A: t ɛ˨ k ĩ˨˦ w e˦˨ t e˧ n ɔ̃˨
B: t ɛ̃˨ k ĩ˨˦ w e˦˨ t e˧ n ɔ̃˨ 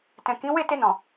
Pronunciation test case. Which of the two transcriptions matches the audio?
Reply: B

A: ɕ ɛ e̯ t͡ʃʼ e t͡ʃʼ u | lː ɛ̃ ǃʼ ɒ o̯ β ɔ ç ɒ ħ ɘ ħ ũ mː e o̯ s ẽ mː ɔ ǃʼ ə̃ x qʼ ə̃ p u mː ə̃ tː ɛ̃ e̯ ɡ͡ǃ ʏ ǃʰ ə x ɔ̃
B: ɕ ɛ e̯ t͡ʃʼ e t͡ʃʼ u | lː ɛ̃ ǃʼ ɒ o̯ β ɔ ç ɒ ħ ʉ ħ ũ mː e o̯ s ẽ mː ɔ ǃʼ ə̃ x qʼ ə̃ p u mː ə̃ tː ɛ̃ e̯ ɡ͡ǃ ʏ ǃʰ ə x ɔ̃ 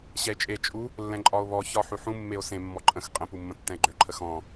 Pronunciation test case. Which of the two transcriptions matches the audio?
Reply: B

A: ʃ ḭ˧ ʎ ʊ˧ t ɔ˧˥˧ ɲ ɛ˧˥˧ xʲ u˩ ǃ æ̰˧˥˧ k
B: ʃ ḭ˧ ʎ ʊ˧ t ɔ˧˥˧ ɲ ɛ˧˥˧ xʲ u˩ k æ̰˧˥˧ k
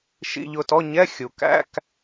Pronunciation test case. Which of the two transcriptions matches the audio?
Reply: B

